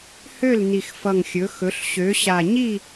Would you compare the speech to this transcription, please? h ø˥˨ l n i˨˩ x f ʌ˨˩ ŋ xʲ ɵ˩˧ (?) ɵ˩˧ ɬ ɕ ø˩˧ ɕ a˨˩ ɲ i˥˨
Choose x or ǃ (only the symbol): x